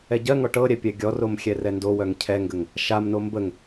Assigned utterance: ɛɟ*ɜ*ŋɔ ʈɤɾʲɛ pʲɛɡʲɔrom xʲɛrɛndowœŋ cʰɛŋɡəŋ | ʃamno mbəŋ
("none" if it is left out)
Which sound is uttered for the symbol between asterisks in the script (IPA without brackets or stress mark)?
ɜ